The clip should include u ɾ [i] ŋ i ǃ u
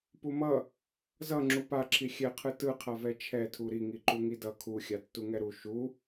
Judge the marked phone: correct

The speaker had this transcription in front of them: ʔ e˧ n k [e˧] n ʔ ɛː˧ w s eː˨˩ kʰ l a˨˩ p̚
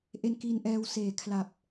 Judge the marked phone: incorrect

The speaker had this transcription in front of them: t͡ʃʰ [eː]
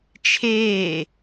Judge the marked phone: correct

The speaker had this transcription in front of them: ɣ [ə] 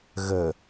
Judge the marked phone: correct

